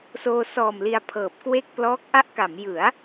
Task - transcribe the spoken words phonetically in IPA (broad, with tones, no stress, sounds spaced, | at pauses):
s oː˧ s ɔː˨˩ m l i˧ a̯ pʰ ɤː˨˩ p̚ k w e˥˩ k̚ p l ɔː˦˥ k̚ ʔ a˦˥ ʔ k a˩˦ m j ɯ˩˦ a̯